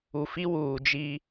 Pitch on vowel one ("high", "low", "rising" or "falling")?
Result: low